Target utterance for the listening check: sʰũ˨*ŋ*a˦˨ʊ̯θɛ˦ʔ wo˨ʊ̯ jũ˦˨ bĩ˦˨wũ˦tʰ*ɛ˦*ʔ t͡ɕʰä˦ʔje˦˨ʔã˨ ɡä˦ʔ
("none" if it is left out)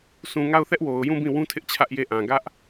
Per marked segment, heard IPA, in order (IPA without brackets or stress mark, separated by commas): ŋ, ɪ˦